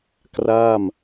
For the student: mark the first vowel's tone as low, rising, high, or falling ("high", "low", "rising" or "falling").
falling